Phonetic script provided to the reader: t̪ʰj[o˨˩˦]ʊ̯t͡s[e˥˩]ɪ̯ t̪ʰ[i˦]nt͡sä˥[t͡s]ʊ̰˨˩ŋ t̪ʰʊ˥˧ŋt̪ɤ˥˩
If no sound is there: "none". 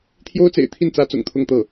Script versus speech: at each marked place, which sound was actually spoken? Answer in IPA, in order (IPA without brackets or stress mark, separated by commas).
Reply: o˥, ḛ˨˩, i˥˩, t͡s